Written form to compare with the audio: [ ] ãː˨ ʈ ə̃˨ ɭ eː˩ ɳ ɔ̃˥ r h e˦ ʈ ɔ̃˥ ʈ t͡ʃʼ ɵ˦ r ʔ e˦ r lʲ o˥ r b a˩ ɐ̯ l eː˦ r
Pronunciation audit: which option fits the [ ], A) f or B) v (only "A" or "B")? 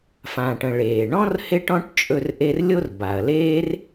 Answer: A